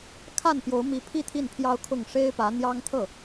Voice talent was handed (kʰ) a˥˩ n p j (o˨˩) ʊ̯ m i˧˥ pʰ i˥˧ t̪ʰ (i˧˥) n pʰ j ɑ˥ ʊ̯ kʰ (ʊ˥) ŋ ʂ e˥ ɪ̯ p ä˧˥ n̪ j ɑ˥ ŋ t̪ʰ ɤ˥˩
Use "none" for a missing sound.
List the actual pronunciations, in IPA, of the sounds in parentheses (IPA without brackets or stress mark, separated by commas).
kʰ, o˧˥, i˥˩, ʊ˥˩